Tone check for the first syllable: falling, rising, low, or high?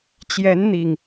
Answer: rising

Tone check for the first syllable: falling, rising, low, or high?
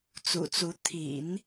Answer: low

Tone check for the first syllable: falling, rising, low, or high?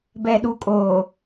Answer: low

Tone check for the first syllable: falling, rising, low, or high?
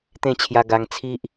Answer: falling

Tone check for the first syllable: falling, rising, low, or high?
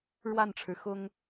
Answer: falling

